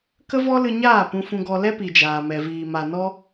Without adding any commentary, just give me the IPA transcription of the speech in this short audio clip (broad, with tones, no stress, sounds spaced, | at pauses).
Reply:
k ə˦ v ɔ˦ l ɨ˧ ɲ aː˦˨ p ũ˧ f ũ˧ ɡ ɔ˧ l ɛ˦ p i˨ d͡ʒ aː˨ m ɛ˨ v iː˨ m a˨ n ɔ˦